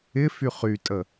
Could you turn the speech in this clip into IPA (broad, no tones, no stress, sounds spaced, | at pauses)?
ɪ f y χ y tʼ ə